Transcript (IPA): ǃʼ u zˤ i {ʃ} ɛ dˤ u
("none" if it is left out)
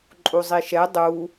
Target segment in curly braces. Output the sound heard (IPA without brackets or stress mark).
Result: ʃ